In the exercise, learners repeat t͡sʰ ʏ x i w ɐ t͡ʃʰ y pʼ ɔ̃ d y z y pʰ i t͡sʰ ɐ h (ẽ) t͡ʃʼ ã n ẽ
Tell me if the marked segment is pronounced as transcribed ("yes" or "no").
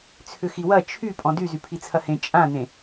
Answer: yes